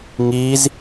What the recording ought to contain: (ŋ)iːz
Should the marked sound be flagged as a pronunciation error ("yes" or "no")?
no